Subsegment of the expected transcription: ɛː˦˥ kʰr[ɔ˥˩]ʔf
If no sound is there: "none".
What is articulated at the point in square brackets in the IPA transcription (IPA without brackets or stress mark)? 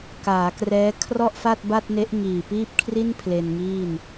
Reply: ɔ˥˩